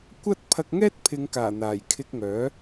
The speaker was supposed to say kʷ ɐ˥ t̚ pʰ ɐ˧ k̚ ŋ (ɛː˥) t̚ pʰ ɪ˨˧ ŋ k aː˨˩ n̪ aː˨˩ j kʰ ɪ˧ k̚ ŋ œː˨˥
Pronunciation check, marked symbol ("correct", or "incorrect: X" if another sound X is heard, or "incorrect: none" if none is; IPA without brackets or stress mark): correct